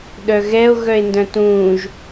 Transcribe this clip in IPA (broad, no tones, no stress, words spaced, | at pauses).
ɗœɣɛo̯ ɣœe̯ndœ̃tũːʒ